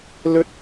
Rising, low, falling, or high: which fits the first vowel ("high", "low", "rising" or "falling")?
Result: high